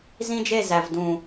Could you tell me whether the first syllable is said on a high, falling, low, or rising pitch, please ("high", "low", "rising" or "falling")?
high